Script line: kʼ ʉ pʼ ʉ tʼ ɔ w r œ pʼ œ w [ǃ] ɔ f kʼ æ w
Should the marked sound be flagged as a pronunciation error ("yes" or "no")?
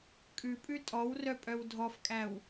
yes